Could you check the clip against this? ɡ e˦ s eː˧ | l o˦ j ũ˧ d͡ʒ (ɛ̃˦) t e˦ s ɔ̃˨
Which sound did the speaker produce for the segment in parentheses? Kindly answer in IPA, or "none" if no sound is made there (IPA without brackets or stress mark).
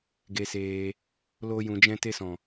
ɛ̃˦